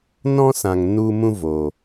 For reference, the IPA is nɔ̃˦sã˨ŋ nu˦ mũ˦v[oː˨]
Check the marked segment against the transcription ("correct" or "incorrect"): correct